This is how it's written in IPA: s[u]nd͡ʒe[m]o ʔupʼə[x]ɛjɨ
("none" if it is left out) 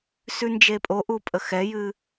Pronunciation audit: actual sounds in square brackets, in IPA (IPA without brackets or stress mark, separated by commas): ʉ, pʼ, x